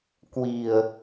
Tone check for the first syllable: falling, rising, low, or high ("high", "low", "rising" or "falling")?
low